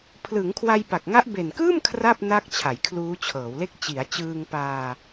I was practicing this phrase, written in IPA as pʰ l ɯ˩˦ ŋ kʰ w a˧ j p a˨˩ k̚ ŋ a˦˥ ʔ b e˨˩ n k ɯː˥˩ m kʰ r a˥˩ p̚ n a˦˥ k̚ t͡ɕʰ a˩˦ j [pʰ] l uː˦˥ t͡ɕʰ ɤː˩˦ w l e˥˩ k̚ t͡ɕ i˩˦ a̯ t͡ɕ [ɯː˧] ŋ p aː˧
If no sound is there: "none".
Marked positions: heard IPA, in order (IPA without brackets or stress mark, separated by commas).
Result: kʰ, ɯː˧